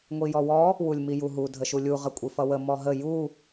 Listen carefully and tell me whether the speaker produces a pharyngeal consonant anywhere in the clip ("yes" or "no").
no